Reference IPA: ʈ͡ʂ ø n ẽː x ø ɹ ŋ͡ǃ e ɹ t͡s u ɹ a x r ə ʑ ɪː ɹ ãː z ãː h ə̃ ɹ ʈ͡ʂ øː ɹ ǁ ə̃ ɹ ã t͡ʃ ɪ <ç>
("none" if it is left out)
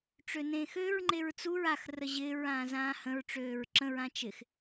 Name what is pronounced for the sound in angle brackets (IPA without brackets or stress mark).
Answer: x